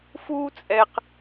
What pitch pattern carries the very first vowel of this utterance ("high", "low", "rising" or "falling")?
high